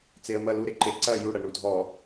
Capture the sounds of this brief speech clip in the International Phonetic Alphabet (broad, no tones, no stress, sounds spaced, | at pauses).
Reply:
t͡s e ə̯ m ɐ l u ɾ e ǃ e ǀ ɐ j u ɽ ɐ ɳ u dʱ ɔ